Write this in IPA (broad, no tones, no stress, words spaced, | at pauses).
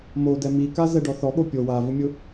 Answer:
modɛ mikazɛɖɔ θɔɠo pʲo wavʊmʲʊ